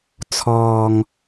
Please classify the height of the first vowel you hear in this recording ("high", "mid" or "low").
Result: mid